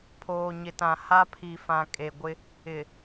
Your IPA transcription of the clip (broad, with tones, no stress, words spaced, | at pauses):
pʰoː˨ɲɪ˨tã˨ ha˦pʰi˨fã˨ kʼe˨ɡʷɪ˦ | ɪ˨